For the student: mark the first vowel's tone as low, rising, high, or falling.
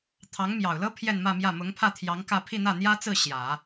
rising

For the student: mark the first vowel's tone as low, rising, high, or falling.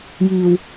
low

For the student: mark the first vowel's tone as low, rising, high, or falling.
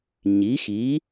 rising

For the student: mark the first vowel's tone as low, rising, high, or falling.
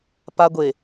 high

